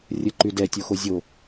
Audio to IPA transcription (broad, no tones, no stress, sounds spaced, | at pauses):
rʲ ə ǃ y d ɛ tʲ o x o zʲ o